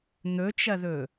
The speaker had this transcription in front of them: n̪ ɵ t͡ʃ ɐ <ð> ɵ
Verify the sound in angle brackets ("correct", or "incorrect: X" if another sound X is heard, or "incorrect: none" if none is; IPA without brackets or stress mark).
correct